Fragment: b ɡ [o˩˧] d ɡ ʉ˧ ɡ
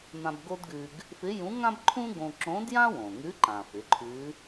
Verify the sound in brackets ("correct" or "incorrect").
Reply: incorrect